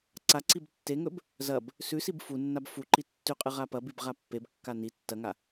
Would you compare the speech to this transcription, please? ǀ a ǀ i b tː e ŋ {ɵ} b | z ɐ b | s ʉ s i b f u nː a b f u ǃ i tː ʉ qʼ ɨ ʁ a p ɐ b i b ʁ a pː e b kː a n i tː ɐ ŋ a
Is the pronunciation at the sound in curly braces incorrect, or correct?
correct